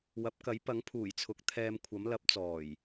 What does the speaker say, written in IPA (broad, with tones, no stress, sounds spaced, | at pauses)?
w ɐ˨˥ p̚ k ɐ˨˥ j p ɐ˨˥ ŋ pʰ uː˨˩ j t͡sʰ ʊ˨˥ k̚ t̪ʰ ɛː˧ m kʷʰ ɐ˨˥ m l ɐ˨˥ p̚ t͡s ɔː˨˩ j